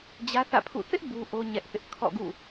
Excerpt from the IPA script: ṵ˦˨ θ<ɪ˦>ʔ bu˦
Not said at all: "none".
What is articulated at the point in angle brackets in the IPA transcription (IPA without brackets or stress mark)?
ɪ˦